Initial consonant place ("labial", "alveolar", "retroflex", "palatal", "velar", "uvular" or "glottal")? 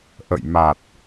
glottal